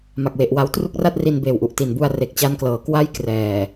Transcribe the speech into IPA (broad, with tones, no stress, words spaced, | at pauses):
ma˨˩k̚we˨˩ʔwa˦˥w tru˥˩k̚ra˥˩t̚ ri˧nbeː˨˩wʔu˨˩ʔ ti˨˩nbu˧a̯ re˨˩k̚t͡ɕa˦˥nklɤː˩˦ kwa˥˩jkrɛː˨˩